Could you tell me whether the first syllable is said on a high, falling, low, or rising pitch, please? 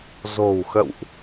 low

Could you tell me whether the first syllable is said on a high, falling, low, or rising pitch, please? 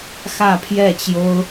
falling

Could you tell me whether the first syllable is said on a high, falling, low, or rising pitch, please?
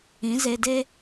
rising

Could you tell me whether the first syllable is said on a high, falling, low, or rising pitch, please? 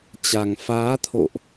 low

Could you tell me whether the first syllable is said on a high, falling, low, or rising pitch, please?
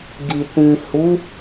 low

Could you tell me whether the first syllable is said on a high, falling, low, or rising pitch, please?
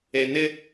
low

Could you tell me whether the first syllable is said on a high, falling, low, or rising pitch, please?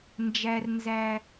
low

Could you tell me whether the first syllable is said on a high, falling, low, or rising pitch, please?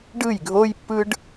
falling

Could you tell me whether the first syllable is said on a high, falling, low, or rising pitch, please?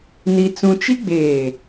high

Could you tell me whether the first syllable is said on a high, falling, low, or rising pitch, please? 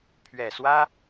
low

